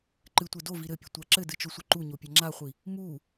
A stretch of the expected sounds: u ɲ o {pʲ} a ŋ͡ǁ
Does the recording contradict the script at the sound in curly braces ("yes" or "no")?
no